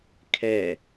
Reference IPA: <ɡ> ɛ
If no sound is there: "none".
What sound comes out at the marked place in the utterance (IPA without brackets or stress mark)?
kʰ